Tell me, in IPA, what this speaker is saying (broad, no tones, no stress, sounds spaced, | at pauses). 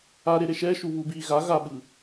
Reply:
a ɾ e ɾ e ʃ ɛ ʃ u β u b i ɣ a ɣ a ɓ ɯ